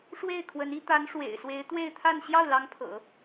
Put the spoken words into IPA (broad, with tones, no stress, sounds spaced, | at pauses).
ʂ w e˥˩ ɪ̯ kʰ w ə˧˥ n i˥ t̪ a˧˥ n ʂ w ḛ˨˩ ɪ̯ s w e˧˥ ɪ̯ t̪ w e˥˧ ɪ̯ t̪ʰ a˥˧ n ɕ j ɑ˥˩ ʊ̯ l ɑ˧˥ ŋ pʰ ɤ̰˨˩˦